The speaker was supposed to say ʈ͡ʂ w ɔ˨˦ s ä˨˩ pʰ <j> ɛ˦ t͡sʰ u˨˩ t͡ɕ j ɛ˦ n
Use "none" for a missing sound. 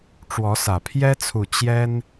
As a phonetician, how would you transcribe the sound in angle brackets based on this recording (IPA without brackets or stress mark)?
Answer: j